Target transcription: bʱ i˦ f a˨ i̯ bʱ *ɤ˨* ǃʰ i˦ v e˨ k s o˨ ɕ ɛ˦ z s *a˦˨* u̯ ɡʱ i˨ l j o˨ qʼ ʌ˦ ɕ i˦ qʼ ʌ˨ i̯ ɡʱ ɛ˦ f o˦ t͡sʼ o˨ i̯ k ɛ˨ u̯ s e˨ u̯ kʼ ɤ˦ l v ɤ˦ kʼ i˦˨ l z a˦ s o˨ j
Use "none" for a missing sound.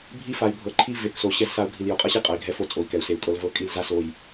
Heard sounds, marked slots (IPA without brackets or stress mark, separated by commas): ɤ˨, a˦˨